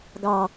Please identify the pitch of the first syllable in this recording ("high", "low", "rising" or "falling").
low